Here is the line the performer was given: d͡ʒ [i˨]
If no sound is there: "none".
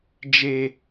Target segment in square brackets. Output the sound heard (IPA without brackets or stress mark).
e˨